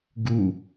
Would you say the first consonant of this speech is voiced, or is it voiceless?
voiced